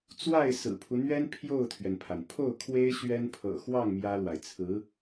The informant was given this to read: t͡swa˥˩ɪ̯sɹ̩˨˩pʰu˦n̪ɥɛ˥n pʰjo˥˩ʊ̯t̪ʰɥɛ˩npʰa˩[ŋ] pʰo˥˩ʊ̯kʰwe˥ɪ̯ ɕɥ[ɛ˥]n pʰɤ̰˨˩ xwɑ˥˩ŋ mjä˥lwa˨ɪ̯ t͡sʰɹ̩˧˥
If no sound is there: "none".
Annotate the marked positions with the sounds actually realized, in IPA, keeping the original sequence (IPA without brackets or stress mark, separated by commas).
n, ɛ˥